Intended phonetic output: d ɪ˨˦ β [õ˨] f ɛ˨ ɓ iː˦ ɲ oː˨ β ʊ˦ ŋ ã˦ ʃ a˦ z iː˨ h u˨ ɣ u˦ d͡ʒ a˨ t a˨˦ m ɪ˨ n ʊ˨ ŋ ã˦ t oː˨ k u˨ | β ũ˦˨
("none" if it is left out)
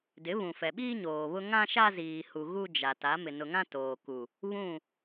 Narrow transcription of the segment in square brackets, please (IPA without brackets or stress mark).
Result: ũ˨